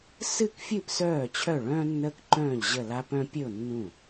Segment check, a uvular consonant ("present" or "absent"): absent